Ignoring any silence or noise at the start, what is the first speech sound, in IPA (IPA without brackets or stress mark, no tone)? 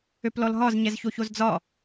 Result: ø